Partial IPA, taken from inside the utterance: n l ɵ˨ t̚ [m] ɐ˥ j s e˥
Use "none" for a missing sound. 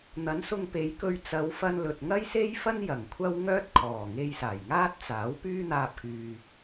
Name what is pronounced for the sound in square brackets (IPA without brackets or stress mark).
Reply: ŋ